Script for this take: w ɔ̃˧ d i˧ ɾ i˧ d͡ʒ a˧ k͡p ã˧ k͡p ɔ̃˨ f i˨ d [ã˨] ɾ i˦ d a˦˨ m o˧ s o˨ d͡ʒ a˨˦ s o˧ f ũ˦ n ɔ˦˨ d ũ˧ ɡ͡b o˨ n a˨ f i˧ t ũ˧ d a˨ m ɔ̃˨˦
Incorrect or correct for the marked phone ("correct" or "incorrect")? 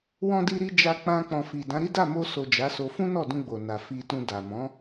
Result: incorrect